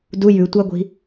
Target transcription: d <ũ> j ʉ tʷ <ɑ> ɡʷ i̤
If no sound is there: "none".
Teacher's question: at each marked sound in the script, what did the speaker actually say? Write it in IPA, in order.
u, ɑ

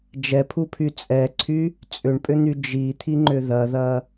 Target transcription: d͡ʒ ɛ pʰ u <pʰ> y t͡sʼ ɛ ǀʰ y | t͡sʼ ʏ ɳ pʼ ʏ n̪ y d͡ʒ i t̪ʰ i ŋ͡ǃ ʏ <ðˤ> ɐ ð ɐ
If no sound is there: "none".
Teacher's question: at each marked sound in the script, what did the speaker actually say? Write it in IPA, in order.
pʰ, ð

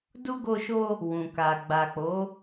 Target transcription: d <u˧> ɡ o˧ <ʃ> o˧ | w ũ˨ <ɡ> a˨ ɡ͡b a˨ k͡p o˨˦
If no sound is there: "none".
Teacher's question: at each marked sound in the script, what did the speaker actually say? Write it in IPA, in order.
u˧, ʃ, k

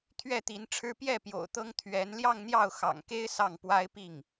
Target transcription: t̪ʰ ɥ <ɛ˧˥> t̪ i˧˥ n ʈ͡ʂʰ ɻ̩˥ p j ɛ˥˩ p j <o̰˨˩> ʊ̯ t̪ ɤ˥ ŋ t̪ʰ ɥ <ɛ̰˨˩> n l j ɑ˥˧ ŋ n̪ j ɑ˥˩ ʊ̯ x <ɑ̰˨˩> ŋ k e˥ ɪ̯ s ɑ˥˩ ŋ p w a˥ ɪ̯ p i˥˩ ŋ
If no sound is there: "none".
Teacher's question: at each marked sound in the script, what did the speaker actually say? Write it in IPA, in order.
ɛ˥˩, o̰˨˩, ɛ˧˥, ɑ̰˨˩

